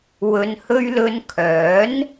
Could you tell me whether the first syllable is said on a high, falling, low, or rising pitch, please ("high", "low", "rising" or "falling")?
low